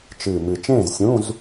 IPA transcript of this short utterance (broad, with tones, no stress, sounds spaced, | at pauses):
t͡ʃ ɨː˨˩ m ɨ˨˩ t͡ʃ ẽː˥˨ z sʲ ũ˧˥˧ z